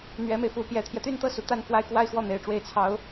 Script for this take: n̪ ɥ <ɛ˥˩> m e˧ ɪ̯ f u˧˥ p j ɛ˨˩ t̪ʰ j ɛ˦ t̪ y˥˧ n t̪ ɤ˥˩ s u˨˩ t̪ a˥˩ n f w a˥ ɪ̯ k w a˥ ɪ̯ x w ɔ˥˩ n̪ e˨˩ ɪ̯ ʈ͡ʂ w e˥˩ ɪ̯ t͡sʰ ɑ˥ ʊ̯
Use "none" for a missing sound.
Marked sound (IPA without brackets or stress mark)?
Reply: ɛ˧˥